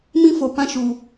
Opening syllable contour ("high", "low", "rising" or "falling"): high